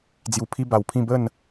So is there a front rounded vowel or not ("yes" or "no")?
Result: no